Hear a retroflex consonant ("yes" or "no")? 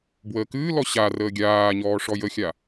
yes